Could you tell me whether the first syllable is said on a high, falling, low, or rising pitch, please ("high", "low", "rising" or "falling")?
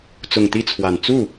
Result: low